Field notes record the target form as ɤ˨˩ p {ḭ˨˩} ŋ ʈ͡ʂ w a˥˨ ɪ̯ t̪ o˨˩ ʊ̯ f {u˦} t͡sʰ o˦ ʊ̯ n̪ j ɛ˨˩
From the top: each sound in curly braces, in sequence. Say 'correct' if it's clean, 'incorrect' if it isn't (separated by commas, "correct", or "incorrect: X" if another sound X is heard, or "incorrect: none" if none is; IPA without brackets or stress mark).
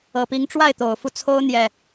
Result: incorrect: i˨˦, correct